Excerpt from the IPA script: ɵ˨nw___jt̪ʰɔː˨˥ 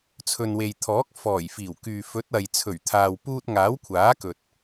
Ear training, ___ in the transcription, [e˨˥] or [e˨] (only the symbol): e˨